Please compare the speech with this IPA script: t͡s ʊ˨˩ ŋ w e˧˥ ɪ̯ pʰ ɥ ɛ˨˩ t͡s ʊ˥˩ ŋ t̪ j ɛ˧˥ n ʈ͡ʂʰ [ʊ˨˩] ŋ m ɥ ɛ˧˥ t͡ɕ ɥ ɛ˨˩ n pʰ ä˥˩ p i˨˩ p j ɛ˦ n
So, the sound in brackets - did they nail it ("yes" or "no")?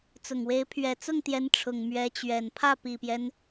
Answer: yes